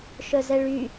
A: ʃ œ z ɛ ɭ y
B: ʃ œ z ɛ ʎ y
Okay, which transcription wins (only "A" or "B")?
A